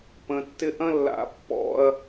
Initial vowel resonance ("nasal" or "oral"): nasal